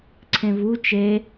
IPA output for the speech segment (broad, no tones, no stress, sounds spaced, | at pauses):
ǀʰ ẽ v u t͡ʃ e